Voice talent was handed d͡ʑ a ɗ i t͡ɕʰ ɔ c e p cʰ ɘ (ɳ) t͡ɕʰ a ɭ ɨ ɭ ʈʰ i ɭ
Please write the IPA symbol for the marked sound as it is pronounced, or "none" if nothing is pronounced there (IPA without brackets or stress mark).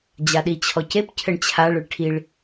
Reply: ɳ